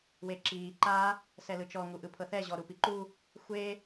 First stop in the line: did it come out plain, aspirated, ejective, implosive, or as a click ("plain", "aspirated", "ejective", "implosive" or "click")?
click